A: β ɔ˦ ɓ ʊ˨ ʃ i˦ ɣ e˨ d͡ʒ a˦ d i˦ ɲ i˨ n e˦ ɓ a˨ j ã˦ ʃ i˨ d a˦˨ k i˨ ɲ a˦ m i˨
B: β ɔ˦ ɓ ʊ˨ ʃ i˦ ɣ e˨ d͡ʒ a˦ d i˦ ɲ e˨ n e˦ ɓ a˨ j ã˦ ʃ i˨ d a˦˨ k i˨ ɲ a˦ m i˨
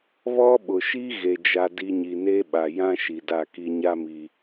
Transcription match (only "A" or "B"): A